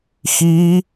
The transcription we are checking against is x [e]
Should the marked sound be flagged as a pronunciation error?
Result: yes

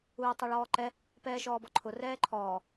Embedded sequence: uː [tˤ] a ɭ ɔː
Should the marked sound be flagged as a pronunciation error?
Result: no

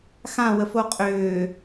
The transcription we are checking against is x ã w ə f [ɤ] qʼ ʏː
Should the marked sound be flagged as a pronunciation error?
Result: yes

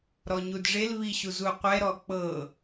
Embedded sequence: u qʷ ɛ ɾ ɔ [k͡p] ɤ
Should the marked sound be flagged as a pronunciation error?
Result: no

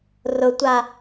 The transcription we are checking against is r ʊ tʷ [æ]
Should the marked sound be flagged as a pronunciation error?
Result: yes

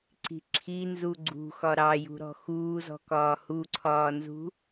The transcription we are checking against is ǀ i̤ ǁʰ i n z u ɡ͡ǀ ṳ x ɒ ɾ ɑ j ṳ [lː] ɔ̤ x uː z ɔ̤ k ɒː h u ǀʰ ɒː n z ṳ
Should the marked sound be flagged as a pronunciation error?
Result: yes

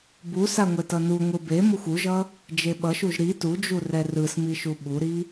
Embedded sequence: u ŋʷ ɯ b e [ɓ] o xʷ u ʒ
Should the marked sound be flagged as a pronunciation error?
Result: yes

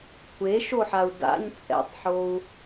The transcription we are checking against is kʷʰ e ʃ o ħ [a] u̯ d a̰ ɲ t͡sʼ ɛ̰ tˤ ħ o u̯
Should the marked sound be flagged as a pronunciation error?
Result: no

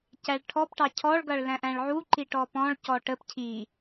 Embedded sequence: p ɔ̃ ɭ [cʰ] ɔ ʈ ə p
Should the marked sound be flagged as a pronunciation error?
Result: yes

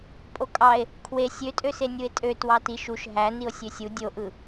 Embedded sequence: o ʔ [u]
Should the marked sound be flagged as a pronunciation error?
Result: yes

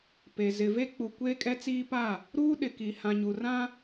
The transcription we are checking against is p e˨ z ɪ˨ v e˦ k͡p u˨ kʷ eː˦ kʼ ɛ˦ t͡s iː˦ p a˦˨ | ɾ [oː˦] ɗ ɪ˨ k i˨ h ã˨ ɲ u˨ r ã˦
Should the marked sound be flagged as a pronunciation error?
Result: yes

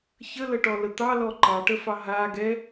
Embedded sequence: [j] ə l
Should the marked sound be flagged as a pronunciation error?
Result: yes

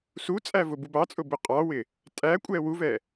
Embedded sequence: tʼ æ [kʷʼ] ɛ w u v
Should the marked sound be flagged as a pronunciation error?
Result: no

